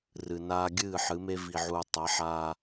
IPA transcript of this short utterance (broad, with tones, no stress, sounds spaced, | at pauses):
r ɨ˨ n aː˦ ɡʲ ɨː˦˨ ħ ɨ˨˦ m e˦ v i˨ ʕ u˨ tˤ ɐ˨˦ ħ aː˦